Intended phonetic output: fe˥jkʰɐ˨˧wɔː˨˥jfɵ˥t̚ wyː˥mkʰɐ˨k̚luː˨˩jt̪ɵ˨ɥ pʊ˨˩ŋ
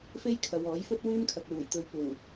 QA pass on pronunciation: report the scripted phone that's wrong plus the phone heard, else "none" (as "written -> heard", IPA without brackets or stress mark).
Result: none